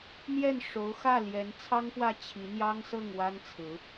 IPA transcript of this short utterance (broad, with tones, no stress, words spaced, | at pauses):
n̪jɛ˥˩n ʂo˧˥ʊ̯xä˥˩ ljɛ˧˥nt͡sʰɑ˥ŋpwä˥˩ t͡ɕʰi˧˥n̪jɑ˥ŋsɤ˥˩ŋ wa˥nt͡sʰɹ̩˧˥